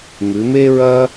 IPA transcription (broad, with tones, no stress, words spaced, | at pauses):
mʉ˩˧me˥ɹɐ˥